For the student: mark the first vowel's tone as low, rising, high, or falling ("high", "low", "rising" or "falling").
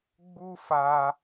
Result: high